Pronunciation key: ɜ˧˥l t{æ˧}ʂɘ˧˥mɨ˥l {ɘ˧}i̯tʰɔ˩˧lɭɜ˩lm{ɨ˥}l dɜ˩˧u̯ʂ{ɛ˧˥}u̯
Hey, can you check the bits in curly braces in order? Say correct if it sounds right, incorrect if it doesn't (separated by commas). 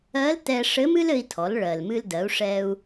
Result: incorrect, correct, incorrect, incorrect